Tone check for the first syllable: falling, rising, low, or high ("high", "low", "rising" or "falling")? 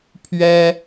high